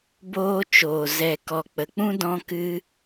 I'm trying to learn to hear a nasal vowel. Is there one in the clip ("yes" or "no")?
yes